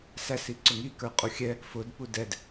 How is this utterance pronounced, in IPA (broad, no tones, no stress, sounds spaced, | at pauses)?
s æ s i ǀ ʊ ŋ i k ə˞ qʼ u xʲ ɛ | f ʊ d p u d ɛ d